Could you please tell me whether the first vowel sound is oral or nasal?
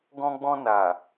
nasal